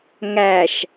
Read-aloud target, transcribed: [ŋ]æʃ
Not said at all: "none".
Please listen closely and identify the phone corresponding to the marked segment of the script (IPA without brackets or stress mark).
ŋ